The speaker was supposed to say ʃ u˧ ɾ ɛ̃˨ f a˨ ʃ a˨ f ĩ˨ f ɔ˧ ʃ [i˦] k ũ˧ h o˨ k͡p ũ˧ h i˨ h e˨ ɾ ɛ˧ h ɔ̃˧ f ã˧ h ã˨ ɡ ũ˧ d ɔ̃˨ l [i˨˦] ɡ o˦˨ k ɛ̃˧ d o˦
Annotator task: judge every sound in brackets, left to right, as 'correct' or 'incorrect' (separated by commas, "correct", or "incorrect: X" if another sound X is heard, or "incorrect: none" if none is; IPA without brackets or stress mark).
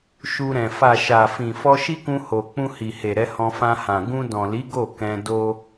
correct, correct